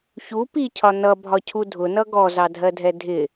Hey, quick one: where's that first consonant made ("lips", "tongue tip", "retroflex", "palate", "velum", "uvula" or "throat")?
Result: palate